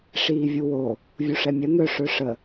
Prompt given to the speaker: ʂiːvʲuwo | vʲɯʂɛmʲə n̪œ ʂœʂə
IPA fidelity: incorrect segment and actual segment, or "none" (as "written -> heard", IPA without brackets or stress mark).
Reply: ɯ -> u